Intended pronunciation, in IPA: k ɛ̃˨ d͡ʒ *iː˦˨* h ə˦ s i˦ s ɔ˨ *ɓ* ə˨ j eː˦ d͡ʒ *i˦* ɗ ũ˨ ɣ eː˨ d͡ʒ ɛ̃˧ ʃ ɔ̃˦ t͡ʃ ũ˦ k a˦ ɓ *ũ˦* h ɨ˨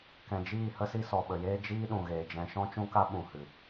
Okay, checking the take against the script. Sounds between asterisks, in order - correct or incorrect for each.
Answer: correct, correct, incorrect: iː˦, incorrect: ũ˨

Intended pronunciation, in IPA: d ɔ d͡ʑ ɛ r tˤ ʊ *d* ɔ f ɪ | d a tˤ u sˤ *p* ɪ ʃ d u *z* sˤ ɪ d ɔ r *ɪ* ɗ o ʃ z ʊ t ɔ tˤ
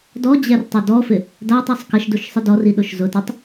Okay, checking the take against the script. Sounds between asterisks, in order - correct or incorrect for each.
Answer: correct, incorrect: k, incorrect: ʃ, incorrect: i

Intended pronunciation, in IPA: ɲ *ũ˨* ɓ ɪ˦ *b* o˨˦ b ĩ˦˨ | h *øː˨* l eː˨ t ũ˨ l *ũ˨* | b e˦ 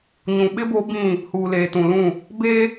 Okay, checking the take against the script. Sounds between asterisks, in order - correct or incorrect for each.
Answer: correct, correct, incorrect: uː˨, incorrect: ũ˦˨

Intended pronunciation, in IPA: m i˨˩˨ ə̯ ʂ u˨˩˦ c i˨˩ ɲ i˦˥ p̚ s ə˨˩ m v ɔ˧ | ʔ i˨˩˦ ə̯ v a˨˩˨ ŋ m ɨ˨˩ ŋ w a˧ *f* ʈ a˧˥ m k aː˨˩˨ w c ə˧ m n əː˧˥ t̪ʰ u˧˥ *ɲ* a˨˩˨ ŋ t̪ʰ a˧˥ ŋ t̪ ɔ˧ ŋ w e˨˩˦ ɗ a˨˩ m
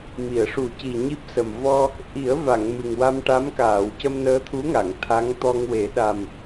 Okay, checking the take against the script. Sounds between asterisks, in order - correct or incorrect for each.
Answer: incorrect: m, incorrect: ŋ

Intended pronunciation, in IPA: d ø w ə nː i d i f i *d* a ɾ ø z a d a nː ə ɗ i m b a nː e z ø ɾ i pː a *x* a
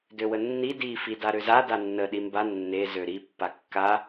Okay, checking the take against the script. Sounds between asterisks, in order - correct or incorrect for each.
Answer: correct, incorrect: kː

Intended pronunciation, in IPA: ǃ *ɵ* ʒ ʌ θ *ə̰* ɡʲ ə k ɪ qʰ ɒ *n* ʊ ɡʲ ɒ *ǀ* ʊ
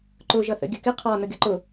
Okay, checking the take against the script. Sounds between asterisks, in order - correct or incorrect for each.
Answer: incorrect: ʊ, correct, correct, incorrect: ǃ

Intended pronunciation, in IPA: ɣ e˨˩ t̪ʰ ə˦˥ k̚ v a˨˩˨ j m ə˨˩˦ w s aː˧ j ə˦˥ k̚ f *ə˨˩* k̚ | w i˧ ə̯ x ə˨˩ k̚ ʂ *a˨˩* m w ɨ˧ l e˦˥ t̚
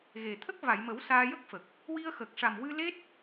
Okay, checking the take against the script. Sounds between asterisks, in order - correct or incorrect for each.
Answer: correct, correct

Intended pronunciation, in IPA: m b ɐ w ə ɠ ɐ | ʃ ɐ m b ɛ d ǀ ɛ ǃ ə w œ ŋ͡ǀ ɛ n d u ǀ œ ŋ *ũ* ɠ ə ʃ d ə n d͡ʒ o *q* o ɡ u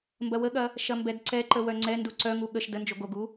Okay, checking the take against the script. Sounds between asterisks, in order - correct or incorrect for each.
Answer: incorrect: u, incorrect: ɡ

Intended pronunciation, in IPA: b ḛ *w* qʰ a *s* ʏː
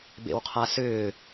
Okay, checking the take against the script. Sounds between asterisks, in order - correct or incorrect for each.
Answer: correct, correct

